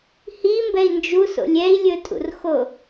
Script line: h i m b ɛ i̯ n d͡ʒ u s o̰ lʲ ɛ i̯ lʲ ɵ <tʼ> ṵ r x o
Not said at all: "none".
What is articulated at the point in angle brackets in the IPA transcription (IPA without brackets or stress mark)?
tʼ